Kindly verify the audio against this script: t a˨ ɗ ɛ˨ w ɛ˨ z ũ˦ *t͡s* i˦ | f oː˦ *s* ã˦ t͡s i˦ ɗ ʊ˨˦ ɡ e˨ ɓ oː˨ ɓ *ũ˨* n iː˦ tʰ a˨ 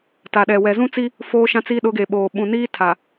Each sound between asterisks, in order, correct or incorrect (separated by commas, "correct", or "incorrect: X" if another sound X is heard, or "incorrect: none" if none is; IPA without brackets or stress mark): correct, incorrect: ʃ, correct